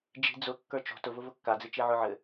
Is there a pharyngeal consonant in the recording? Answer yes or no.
yes